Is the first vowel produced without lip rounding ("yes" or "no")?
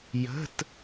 yes